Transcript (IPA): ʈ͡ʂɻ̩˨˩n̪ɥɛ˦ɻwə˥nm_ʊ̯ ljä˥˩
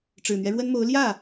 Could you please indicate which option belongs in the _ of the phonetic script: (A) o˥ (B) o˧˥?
B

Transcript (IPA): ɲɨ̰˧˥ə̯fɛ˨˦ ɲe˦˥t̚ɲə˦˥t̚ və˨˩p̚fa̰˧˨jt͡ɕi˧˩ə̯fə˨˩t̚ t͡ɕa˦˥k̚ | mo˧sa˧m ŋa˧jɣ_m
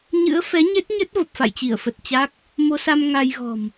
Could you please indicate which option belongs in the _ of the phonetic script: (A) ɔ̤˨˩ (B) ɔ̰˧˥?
A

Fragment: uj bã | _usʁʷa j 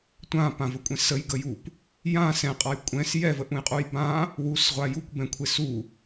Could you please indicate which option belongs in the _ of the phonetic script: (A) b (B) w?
B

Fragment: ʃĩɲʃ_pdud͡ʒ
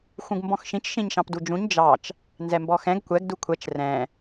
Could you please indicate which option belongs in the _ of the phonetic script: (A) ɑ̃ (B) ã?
A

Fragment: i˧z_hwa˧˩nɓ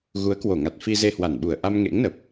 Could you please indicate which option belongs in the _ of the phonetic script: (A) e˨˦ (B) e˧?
B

